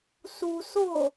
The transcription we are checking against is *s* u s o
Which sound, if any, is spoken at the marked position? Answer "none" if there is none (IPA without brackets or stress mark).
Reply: s